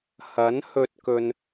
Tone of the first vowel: rising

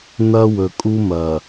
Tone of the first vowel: high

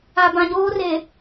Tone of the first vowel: low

